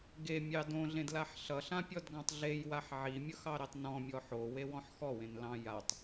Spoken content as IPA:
ɡ e mʲ ɑ d õ ɮ ẽ d l a ħ ɬ ʌ ɬ ã pʲ ɔ d ɡ ɑ̃ tˤ ɮ e j w a ħ ʕ i mʲ ʌ x ɑ ɾ e tˤ n ɔ̃ mʲ ɔ ħ o w e w ɔ̃ ħ x ɔ w ẽ n l ɑ̃ j a tˤ

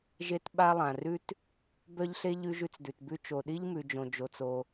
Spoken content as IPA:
ʒ e˥ t ɓ a˥ lˠ ã˩ r ʉ˥ t | b œ˥ ʎ ɬ e˥ ʎ ʉ˥ ʒ ʉ˥ t͡s d ʉ˩ t b ʉ˥ t͡ʃ o˩ ɗ i˥ ʎ m ʉ˩ d͡ʒ õ˩ d͡ʒ o˩ t͡s o˩

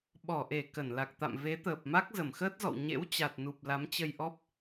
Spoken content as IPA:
ɓ ɔ˧˩ ʔ e˧˩ k ə˧˩ n l a˨˩ k̚ t̪ a̰˧˨ m v e˨˦ t̪ əː˨˩ p̚ m a˦˥ k̚ z ə˧˩ m x əː˦˥ t̚ z ɔ̰˧˨ w ɲ ḛ˧˥ w t͡ɕ a˨˩ t̚ n u˨˩ p̚ l a˨˦ m t͡ɕ ə˧ j ʔ ɔ˦˥ p̚

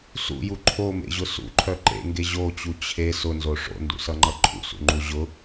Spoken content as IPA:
s ṵ j u ǃʰ o m ḛ ʑ ʊ s ṵ ǃʰ œ ǃ ḛ ŋ ɡ e ʑ o t͡ɕ u t͡ɕʰ e s ʊ n z o ʂ o̰ n d ṵ s ʌ ŋ͡ǃ ʌ ǃʰ ṵ s ṵ ŋ͡ǃ u ʑ ʊ

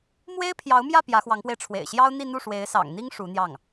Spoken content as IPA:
m w e˥ ɪ̯ pʰ j ɑ˧˥ ʊ̯ m j ä˥˩ p j ä˧˥ x w ɑ˧˥ ŋ p w e˧ ɪ̯ ʈ͡ʂʰ w ḛ˨˩ ɪ̯ ɕ j ɑ˥ ʊ̯ n̪ i˥˧ n̪ u˥˩ ʂ w e˧˥ ɪ̯ s ɑ̰˨˩ ŋ n̪ i˥ ŋ ʂ u˧˥ n̪ j ɑ˥˩ ŋ

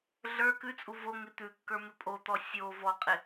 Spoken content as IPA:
ɮ ə˞ k ʉ t͡sʼ u v o ŋ ɪ t̪ ʉ kː ə˞ m ɪ pʼ o t̪ ɔ sʲ o v ɔ qʼ ɪ

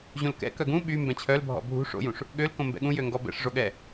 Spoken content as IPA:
ʑ ũ l k ɛ̰ k œ ɡ ũ ɓ y m b ɛ̃ t͡ɕʰ œ l bʱ ɔ̰ bʱ ṳ ʂ o̰ j ũ ʂ | ɠ ø l k õ m b ɛ̰ ɠ ũ j ø ŋ ɡ ɔ b ɛ̰ ʂ ʐ o ɠ ɛ

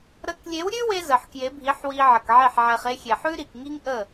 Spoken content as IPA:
ɾ ə˨˦ k lʲ e˨˦ w ɾʲ ʉ˦ w e˧ z ə˨ ħ k j e˨˦ bʱ i˨˦ ħ w i˧ ʕ ə˨ k ʕ e˦˨ ħ ʕ ɛ˧ χ e˧ xʲ e˨ ħ ʉ˦ ɾ i˨ k ŋ i˦ ŋ ʔ ə˦˨

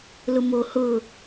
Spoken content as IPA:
l ʊ m o h ʊ

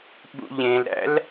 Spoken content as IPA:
ɓ ṵ ʎ ẽ l ɾ æ̰ l

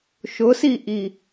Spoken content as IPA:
ʃ ʊ s i ʔ i

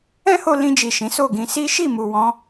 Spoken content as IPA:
ɛ̃˦ h o˧ l ĩ˧ d͡ʒ i˨ ʃ ĩ˨˦ s o˦˨ ɡ ĩ˧ s i˦ ʃ i˦˨ m u˨ w ɔ̃˨˦

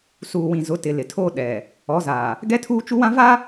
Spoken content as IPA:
s uː˨ w ĩ˨ z ʊ˨˦ t ɪ˨ l ɪ˨ tʰ o˦ ɗ ɛ˨ | ɔ˨˦ z aː˨ | ɡ ɛ˦ tʰ uː˦ t͡ʃ u˦ w ã˦ v a˦

